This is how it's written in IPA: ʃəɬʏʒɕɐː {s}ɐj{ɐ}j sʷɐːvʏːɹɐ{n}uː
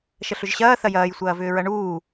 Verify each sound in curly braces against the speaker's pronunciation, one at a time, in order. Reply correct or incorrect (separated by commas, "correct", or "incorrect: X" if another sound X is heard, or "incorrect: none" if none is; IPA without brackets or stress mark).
incorrect: θ, incorrect: ɐː, incorrect: ɳ